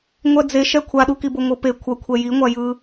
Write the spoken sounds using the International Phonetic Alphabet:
ŋʷɛd͡zeʃɛ kʷʰaɗukibo ŋʷɯpe kʷʰʌkʷʰɛ jiŋʷajɯ

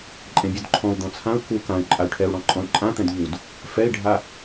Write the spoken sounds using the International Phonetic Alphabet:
ǃʼẽbʲudǃʰɔ̃u̯ d̪ɔ̃t͡sʰãu̯ ku kãy̯ ǃʼay̯ʈʰɛu̯ ɽɔ̃ǃʼɔ̃y̯ǃʼãt̪ɛ̃d ʎud | fɛi̯ɖʱa

